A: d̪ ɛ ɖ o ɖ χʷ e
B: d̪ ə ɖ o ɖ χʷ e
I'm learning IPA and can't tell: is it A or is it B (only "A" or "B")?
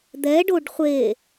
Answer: A